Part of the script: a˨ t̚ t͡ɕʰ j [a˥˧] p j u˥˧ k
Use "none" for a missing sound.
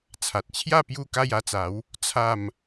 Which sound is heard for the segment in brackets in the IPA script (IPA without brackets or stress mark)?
a˥˧